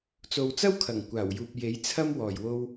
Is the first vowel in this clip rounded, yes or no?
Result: yes